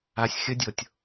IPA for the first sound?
a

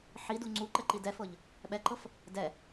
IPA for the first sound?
ħ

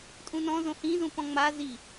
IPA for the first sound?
tʼ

